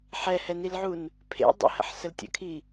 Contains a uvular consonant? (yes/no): no